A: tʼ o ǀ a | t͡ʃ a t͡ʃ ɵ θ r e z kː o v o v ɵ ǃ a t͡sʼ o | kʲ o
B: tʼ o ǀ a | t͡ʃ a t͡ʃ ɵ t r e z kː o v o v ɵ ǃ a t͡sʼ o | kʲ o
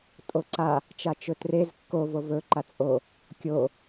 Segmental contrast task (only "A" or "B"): B